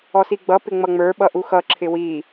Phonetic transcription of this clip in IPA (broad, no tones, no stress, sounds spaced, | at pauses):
ɔ s i ɡ͡b ʌ p ɪ ŋ͡m ʌ ŋ͡m ə˞ ɓ ʌ ʔ u x ʌ ǁʰ ɪ w i